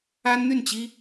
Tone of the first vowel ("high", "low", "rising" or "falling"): high